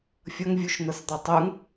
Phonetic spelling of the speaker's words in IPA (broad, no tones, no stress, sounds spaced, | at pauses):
fʲ ʌ ŋ vʲ u ʃ n̪ ʌ s d̪ ɒ tˤ u ŋ